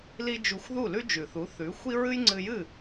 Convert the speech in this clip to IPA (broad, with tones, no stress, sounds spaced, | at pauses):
l i˥ d͡ʒ u˧ xʷ ð u˥˩ l ʉ˥ d͡ʒ ʉ˩ θ u˩˥ θ ʉ˩˥ xʷ i˥ ɹ ɨ˥ j ŋ͡ǀ ɨ˧ j ɨ˥˩